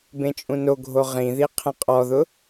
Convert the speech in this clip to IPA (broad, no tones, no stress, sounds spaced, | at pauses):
b ẽ t͡ʃʼ ũ n o ɡʱ o ʁ ĩ ð i qʰ ẽ qʼ ɔ ð ʊ